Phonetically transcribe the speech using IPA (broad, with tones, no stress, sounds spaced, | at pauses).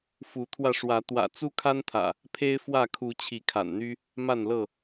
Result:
f u˨˦ t̪ʰ w ä˧ ʂ w ä˨˦ t̪ w ä̰˨˩ t͡s u˦ kʰ a˦ n t̪ʰ ä̰˨˩ | pʰ e˦ ɪ̯ f w ä˥˨ kʰ u˨˦ t͡ɕʰ i˨˦ kʰ a̰˨˩ n n̪ y˦ | m a˥˨ n l ɤ˥˨